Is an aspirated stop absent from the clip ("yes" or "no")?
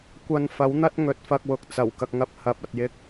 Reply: yes